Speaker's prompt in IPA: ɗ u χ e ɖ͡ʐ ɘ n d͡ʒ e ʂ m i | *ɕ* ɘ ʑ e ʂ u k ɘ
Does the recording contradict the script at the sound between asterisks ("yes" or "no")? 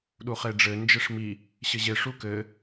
no